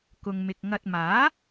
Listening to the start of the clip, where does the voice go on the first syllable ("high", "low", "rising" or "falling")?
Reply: low